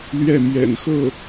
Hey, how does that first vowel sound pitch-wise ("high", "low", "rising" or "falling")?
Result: falling